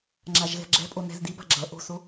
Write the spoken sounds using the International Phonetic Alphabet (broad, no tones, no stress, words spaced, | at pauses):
ŋ͡ǁaʒɣɛ̤ɡ͡ǁɛ̤pʼo nɛ̤zdiba̤ ɡ͡ǁʌ ʔo̤so